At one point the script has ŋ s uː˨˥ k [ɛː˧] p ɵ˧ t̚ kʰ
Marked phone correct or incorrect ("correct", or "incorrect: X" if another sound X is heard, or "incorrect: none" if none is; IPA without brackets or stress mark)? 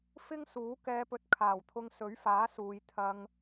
correct